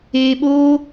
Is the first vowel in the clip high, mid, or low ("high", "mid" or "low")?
mid